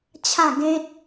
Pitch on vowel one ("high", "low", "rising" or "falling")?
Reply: falling